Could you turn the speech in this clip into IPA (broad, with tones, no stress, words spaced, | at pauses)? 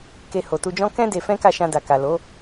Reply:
ke˧ho˨tu˧d͡ʒɔ̃˦ kɛ̃˦ de˧fɛ̃˦ka˦˨ ʃã˧da˨ka˨lo˨˦